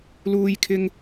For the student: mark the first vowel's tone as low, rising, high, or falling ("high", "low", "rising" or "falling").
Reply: low